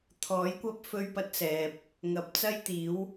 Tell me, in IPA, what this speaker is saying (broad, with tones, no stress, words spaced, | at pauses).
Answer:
t̪ʰɔː˨˥jkʷɐ˥p̚ fɵ˥ɥpɐ˥t̚ sɛː˨p̚ | ŋɐ˧p̚ t͡sɐ˥jt̪iː˨˥w